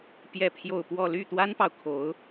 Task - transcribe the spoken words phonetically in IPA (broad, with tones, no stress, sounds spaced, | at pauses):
p j ɛ˥˧ pʰ j o˥˧ ʊ̯ p w ɔ˥˧ l y˥˩ t̪ w a˥ n p ɑ˨ ʊ̯ kʰ o˧˥ ʊ̯